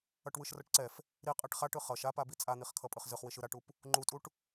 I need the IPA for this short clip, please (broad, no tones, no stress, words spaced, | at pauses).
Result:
ʌʈwɯʃrʌʈǀɛf | ɾi qʼɛʈχaʈɯ χʌʃ apabi t͡sʼan̪iχkʰʌ pʼɯχzɯχwiʃ ɯɾaʈup | ŋ͡ǃutʼuʈ